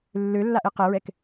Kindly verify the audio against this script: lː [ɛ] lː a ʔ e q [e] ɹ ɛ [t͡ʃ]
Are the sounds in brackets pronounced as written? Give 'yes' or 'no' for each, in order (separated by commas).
no, yes, no